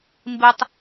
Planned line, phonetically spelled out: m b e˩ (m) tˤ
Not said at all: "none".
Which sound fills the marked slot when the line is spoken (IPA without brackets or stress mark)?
none